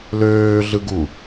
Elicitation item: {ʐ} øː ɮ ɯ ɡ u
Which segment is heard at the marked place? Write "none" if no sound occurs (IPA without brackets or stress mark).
l